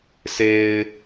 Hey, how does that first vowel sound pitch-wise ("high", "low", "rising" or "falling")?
low